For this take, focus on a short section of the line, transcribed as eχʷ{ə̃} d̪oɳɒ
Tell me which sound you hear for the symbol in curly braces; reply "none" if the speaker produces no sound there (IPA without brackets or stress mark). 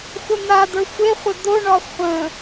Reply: ə